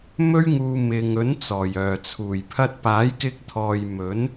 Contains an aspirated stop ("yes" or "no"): yes